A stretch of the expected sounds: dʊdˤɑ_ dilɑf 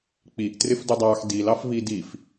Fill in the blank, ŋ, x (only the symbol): x